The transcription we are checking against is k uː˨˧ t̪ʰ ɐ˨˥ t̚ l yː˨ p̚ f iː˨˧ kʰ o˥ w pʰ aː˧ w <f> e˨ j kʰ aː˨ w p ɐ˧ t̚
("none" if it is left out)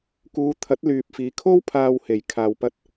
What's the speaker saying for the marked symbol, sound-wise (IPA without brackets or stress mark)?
h